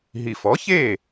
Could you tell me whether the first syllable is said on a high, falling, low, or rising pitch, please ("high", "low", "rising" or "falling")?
low